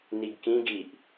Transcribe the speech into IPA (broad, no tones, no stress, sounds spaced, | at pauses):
n i ɡ k ĩ ɡ i ʔ